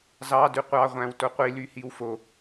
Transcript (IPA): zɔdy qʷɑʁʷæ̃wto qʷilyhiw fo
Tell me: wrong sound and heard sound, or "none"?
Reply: ɔ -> ɑ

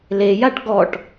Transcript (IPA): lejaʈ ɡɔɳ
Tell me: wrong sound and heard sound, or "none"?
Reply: ɳ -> ʈ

